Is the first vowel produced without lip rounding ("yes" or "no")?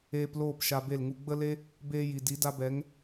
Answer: yes